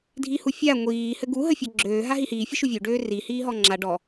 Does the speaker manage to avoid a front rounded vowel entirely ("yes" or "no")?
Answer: no